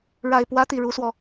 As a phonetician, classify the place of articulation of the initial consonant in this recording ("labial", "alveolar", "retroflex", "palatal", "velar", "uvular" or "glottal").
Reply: retroflex